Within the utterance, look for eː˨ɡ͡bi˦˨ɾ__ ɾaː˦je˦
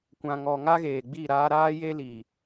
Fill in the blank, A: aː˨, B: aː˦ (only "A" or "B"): B